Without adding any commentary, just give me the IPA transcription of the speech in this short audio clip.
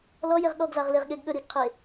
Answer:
lɔjeʁ ɠɔɡ zaʁleʁɠeɡ ɠɵ ɾiɡqʰe

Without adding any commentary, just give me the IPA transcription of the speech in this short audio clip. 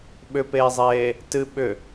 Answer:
ɓʏpeːzˤeː | tɨ ɓʏ

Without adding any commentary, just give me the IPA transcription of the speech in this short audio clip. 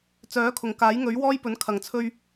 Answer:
t͡sœː˨˥kʰʊ˨˩ŋkaː˨˥j ŋɵ˨˥ɥwɔː˥jpɵ˨˥n kʰɐ˨˩ŋt͡sʰɵ˧ɥ

